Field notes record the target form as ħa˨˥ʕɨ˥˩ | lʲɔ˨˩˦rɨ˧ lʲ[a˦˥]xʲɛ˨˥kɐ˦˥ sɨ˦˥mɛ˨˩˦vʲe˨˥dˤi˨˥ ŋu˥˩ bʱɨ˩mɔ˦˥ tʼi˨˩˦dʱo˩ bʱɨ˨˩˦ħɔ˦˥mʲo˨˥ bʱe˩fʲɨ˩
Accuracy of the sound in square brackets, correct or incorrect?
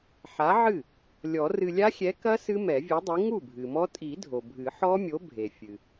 correct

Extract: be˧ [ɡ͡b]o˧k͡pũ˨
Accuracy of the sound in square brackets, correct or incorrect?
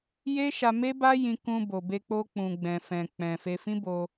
incorrect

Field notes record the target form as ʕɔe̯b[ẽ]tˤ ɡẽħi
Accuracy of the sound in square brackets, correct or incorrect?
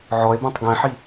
correct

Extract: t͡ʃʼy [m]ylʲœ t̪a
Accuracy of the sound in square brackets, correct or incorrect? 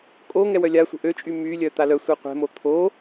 correct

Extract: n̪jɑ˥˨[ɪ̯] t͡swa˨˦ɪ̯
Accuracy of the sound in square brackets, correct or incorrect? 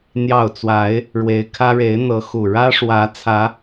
incorrect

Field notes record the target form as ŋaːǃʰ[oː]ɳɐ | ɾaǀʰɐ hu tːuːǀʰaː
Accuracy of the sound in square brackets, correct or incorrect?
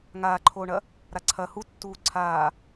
correct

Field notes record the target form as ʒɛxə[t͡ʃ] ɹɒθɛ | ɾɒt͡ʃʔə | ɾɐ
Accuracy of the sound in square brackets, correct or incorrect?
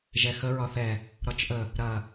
incorrect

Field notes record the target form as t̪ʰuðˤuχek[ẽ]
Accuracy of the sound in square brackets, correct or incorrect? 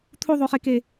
incorrect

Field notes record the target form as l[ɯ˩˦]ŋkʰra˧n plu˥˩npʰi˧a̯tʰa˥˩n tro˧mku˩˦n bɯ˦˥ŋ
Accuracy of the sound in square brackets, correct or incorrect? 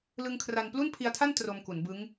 incorrect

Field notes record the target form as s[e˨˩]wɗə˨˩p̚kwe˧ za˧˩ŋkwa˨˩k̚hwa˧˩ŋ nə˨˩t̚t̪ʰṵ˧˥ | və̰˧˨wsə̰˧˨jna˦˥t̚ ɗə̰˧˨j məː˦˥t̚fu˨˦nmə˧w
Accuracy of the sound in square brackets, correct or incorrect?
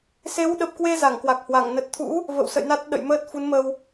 incorrect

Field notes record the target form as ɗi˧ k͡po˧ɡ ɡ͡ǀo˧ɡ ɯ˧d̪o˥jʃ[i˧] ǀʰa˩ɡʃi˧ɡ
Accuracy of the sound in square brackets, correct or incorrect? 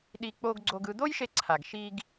incorrect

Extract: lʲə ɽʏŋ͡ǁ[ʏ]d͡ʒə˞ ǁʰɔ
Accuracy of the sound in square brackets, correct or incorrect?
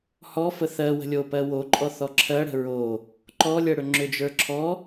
correct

